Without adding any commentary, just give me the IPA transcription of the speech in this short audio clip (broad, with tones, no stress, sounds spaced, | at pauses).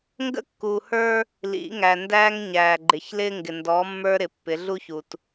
ŋ ɡ ə̰˦ kː uː˨ h ə˞˦ | l ḭ˨˦ ŋ æ˨ n d æː˦ ŋ ɲ æː˨ ɡ͡ǃ ɪ˨ ç l ɪː˦ ŋ ɡ ɪ˨ n d ɔː˨˦ mː ə˞˦ ɾ ɪ˨ pː ɪ˨˦ ɮ u˦ ç u˨ t